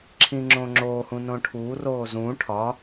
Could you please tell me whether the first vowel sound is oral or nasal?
nasal